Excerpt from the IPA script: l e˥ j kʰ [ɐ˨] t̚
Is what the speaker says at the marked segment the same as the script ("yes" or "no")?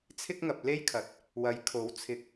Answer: no